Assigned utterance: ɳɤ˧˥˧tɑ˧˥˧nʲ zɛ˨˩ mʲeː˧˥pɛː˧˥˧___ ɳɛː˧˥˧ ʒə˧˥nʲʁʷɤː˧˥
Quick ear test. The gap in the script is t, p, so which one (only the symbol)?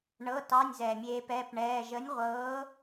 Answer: p